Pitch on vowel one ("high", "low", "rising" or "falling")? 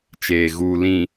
low